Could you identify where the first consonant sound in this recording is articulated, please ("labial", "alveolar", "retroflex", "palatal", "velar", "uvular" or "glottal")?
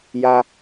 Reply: palatal